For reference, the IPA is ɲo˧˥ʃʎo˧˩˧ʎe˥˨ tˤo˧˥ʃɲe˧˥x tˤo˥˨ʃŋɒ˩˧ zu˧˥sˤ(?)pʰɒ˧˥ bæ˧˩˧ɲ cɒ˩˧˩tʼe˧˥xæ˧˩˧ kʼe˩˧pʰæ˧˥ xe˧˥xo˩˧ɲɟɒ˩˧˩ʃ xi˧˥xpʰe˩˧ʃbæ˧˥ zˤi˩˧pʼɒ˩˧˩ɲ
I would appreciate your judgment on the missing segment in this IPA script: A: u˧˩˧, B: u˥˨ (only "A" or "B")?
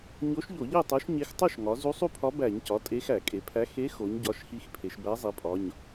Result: B